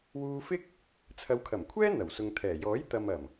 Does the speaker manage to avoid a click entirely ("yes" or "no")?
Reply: yes